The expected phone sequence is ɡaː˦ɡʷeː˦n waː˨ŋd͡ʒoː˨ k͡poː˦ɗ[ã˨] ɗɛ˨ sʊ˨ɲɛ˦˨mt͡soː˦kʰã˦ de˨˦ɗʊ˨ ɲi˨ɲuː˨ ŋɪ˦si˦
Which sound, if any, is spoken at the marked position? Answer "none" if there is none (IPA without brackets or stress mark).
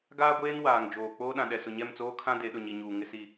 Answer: ã˨